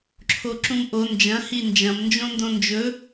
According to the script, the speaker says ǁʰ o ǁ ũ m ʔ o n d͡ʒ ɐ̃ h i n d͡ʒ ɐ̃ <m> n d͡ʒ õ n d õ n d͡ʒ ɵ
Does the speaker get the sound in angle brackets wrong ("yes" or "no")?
no